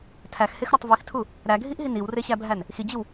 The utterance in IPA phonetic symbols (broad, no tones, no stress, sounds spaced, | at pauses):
tʰ æ x h e x ɾ ɒ tˤ v i x tʰ u | ɾ æ ɡʱ i ʔ ɦ i n i w r e ɕ æ bʱ æ n | x i d͡ʑ i w